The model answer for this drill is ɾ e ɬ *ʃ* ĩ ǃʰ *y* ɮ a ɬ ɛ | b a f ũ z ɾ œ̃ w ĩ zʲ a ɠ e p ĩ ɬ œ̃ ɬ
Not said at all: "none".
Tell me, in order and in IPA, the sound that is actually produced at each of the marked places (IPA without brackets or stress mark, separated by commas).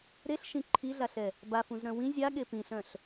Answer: ʃ, i